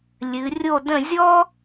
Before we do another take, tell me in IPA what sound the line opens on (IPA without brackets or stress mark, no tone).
lʲ